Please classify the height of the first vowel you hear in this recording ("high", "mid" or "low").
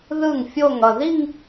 high